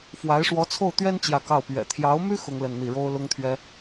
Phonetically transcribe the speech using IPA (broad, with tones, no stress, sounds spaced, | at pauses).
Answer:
f w a˧˥ ɪ̯ ʂ w ɔ˧˥ t͡sʰ o˥˩ ʊ̯ t̪ ɥ ɛ˥ n t͡ɕ j ä˥˧ k ɑ˥˩ ʊ̯ p ɥ ɛ̰˨˩ t̪ʰ j ɑ˧˥ ʊ̯ m y˥ x ʊ˥ ŋ l ə˥˧ n n̪ i˥˩ ɻ o˥ ʊ̯ l ʊ˥ ŋ t̪ʰ ɥ ɛ˥